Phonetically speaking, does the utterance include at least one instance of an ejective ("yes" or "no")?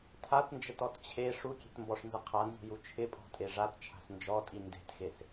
yes